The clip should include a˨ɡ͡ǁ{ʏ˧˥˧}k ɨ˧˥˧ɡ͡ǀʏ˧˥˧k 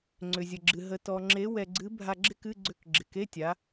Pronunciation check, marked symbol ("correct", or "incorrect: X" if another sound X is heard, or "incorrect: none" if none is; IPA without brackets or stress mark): incorrect: ɪ˧˥˧